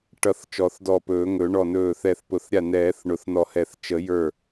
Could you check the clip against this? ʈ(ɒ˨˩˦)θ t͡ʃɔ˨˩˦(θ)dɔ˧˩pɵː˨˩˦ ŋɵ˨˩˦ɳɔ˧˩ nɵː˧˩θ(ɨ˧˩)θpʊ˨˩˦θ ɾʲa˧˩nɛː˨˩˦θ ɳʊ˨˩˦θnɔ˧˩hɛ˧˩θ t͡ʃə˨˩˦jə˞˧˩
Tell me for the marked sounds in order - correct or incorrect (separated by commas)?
incorrect, correct, incorrect